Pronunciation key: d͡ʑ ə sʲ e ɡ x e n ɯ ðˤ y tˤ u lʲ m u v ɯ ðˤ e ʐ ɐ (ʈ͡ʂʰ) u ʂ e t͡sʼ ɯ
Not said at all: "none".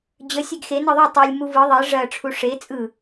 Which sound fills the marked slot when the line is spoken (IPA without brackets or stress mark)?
ʈ͡ʂʰ